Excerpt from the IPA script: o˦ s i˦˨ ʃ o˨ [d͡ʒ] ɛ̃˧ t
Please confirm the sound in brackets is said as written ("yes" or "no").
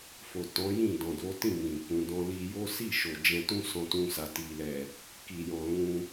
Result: yes